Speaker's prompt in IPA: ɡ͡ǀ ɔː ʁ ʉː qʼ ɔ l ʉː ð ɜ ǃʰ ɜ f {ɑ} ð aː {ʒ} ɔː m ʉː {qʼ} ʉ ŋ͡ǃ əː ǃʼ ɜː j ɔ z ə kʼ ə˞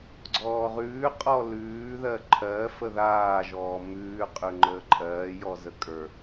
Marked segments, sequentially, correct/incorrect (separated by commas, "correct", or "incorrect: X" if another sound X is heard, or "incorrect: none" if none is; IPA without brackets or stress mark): incorrect: ə, correct, correct